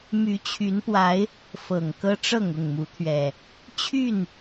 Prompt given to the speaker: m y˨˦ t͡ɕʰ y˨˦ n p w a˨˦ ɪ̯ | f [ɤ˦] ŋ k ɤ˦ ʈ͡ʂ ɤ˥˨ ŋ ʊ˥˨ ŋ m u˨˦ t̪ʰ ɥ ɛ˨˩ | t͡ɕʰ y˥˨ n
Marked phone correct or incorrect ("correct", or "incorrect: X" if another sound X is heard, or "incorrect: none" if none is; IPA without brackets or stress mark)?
incorrect: ɤ˨˩